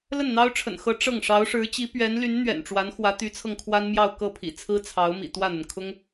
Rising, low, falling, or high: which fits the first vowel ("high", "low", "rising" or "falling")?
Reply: falling